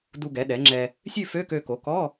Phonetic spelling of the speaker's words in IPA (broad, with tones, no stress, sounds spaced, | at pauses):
d u˧ ɡ ɛ˩˥ ɗ ɛ˩˥ ŋ͡ǁ ɛ˧ | sʲ ʉ˥˧ f ø˧˥˧ k ø˧ k o˩˥ k ɔ˧˥˧